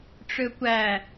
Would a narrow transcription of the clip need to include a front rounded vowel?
yes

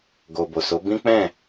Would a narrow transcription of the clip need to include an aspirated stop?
no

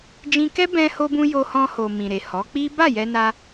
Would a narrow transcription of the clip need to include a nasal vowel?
yes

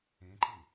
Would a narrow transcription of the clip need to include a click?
yes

